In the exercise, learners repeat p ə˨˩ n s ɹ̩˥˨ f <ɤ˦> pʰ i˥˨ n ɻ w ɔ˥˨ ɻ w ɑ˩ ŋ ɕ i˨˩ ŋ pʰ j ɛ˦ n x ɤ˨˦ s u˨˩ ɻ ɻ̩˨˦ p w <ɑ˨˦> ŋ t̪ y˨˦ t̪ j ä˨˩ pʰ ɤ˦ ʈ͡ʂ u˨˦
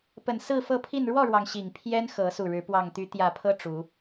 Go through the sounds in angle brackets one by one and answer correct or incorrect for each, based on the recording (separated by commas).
incorrect, incorrect